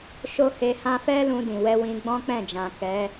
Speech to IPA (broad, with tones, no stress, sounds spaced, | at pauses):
ʃ o˦ h e˧ h ã˦ f ɛ˦ l ũ˧ d ĩ˨ w ɛ˧ w ĩ˧ ɡ͡b ɔ̃˦ k͡p ɛ̃˦˨ d͡ʒ ã˨ k ɛ˨˦